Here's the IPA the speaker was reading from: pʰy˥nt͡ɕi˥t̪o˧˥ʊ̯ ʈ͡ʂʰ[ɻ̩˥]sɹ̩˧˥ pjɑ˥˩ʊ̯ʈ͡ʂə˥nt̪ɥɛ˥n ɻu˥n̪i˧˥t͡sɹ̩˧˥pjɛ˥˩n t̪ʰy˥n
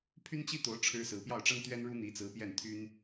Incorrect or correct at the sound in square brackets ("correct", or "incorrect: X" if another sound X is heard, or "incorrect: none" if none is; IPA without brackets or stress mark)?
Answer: correct